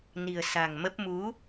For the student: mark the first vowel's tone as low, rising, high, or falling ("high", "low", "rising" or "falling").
low